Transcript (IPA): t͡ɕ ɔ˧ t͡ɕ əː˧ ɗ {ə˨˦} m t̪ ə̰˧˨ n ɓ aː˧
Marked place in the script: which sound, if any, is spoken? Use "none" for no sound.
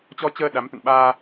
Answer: a˨˦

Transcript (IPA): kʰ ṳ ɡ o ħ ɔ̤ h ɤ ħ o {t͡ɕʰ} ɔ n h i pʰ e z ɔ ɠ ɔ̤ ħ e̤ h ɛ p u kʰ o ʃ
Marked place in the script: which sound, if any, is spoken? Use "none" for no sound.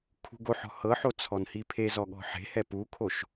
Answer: t͡sʰ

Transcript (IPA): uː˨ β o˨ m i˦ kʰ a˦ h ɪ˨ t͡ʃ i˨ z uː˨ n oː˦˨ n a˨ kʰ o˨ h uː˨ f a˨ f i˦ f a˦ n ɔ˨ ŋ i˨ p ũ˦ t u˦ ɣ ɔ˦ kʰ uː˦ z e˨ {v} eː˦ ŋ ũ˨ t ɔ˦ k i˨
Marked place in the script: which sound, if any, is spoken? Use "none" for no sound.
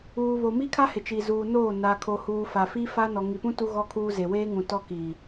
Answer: w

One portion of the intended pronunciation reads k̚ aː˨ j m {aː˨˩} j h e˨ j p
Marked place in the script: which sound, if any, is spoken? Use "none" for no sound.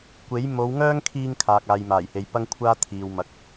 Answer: aː˨˩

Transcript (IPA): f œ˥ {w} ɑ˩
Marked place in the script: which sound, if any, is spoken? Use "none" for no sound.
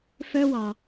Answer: w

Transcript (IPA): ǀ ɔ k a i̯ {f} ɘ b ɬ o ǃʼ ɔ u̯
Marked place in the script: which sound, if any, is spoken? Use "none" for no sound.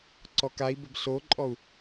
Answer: b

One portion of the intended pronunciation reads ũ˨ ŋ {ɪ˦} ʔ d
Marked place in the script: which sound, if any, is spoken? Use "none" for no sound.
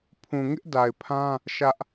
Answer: ɪ˦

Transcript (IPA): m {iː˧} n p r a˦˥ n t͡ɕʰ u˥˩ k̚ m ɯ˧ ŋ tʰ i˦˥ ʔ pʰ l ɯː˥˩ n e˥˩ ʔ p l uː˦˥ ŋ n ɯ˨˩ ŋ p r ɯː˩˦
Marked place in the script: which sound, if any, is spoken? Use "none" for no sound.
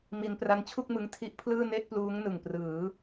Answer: i˧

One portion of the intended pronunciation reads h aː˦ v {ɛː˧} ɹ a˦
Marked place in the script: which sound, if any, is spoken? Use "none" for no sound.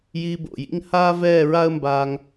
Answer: ɛː˦˨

